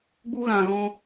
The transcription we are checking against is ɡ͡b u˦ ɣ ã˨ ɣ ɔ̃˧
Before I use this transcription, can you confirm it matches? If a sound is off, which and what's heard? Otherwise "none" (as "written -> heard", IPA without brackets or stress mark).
none